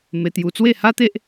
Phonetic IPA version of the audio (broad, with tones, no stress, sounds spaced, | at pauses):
m e˧ t̪ j u˧ t͡s w e˥˧ h a˦ t̪ e˦ ʔ